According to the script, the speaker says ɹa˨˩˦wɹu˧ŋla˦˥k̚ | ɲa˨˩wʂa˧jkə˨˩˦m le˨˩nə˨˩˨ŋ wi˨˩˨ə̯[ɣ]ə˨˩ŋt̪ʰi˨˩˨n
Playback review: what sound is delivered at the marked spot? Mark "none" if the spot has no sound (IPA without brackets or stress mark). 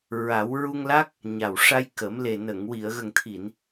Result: ɣ